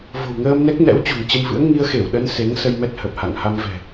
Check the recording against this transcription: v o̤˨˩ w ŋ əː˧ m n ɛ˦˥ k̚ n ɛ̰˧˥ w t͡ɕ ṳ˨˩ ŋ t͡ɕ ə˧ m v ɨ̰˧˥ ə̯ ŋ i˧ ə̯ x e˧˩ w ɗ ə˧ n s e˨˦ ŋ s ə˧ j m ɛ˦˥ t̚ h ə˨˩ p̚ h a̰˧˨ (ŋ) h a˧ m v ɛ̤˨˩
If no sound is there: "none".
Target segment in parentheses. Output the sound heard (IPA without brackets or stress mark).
ŋ